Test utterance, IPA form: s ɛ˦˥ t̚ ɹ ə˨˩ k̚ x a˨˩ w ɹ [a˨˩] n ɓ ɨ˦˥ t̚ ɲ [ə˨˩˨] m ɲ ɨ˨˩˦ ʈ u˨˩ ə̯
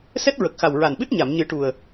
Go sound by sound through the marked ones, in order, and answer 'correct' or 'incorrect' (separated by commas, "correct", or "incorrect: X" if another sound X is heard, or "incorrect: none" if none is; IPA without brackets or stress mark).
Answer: correct, incorrect: a˨˩˨